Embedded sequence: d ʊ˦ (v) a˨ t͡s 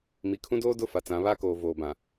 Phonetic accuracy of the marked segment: incorrect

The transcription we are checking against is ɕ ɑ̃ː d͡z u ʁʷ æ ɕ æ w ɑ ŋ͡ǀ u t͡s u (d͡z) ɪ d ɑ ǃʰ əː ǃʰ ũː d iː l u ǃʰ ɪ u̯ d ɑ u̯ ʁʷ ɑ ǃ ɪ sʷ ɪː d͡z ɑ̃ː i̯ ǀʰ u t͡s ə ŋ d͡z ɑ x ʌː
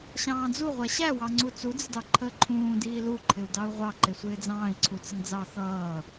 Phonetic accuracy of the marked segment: correct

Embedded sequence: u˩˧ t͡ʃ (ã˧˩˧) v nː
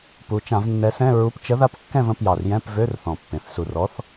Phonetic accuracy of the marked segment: correct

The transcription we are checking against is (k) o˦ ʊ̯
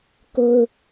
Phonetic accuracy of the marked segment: correct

